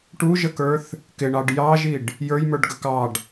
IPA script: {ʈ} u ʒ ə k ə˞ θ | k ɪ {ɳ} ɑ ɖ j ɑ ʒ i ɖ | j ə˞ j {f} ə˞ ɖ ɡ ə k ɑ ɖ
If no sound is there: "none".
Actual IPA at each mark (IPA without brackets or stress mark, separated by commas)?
ʈ, ɳ, m